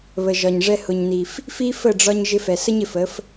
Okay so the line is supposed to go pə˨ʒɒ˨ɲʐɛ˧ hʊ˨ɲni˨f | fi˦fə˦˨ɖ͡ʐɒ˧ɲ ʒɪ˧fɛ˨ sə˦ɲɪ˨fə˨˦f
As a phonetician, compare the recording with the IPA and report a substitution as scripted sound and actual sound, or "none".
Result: p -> β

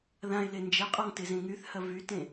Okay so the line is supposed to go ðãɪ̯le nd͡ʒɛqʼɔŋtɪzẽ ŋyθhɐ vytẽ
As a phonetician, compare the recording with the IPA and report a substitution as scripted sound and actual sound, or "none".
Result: none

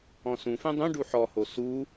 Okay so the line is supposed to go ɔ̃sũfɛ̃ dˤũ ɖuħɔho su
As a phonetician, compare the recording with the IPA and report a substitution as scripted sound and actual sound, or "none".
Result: none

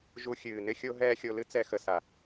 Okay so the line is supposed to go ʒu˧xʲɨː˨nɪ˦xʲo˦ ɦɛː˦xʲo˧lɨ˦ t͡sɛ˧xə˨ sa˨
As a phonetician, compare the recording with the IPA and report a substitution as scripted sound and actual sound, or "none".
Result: none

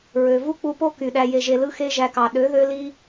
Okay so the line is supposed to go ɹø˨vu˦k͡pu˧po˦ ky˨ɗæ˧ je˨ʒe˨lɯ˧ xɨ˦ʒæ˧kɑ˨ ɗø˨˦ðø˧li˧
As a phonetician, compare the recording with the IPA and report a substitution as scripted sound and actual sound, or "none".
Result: ɨ˦ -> e˦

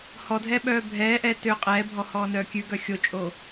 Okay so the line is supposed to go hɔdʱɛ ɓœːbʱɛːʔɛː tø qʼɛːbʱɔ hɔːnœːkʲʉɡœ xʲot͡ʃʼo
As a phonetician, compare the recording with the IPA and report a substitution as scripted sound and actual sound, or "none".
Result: none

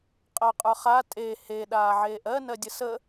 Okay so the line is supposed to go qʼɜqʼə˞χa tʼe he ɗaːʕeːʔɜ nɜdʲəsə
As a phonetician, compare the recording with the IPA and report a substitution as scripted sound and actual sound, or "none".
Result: none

